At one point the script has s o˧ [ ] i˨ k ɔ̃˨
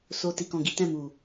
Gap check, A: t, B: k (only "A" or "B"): A